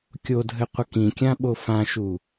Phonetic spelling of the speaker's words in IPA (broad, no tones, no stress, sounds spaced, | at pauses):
kʲ o dʱ ɘ qʷ ə k ĩ kʲ ã ɓ o f ã ʃ u